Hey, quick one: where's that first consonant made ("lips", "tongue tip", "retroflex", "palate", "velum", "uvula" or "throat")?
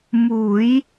lips